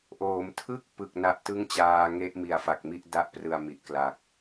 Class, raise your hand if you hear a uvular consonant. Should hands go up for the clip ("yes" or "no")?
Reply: no